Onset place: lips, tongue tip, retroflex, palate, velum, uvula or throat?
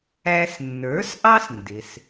tongue tip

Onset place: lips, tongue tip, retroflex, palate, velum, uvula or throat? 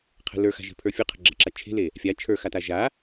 uvula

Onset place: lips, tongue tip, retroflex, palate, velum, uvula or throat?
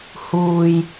throat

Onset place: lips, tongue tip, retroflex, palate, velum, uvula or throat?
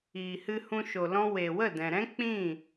throat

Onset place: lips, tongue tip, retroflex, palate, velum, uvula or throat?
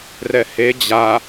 tongue tip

